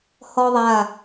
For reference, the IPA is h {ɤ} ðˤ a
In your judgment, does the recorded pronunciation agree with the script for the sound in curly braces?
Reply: no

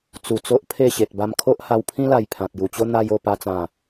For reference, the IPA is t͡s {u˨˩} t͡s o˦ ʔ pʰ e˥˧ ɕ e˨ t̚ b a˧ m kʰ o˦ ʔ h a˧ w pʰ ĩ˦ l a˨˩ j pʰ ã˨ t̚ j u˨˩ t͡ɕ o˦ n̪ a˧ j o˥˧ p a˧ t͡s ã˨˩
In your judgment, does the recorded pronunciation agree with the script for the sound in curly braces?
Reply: yes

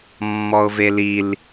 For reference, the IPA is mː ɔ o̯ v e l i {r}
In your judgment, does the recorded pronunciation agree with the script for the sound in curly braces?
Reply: no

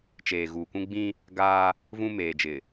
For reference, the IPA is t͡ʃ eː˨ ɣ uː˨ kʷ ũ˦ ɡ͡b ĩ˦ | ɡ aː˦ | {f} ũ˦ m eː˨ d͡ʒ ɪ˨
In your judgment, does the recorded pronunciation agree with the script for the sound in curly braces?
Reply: no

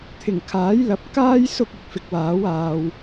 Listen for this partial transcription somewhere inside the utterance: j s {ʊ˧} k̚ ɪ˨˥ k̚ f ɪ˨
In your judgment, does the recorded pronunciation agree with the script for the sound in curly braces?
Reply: no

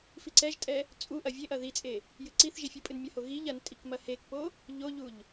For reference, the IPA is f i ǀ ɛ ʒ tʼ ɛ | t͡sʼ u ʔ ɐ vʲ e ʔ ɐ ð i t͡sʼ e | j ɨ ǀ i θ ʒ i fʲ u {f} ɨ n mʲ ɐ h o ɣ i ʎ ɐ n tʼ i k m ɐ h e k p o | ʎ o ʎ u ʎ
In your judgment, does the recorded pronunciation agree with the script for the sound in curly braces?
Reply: no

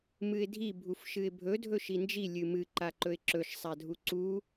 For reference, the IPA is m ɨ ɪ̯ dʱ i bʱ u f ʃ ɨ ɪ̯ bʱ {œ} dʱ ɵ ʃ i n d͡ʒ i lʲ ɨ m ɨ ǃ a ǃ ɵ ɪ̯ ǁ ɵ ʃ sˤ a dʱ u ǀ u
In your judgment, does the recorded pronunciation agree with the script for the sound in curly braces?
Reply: no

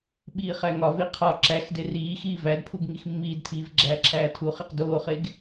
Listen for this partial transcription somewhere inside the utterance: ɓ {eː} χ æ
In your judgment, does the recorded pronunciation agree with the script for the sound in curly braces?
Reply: no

